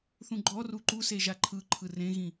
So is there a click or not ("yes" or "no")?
yes